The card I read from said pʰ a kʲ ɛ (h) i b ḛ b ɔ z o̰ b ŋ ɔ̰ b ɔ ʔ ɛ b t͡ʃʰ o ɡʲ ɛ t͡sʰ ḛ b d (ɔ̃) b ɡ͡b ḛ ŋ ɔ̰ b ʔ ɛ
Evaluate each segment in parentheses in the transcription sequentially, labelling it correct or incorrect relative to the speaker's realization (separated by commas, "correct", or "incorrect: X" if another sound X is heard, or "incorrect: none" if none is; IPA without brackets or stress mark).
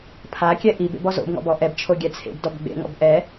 incorrect: ʔ, incorrect: ɔ